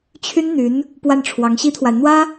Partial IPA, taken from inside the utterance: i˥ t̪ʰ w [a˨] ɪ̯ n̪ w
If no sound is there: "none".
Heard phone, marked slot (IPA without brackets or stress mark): a˨